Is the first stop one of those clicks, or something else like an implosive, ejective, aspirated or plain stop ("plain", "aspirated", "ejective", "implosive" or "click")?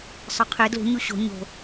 aspirated